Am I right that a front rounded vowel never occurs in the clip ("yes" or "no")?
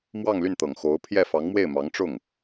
no